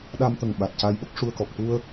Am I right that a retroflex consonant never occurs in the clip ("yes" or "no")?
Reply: no